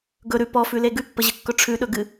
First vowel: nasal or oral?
oral